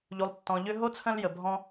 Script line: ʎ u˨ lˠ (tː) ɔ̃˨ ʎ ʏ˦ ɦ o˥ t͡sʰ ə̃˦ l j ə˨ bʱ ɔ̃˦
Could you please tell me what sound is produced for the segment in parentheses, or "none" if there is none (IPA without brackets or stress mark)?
tː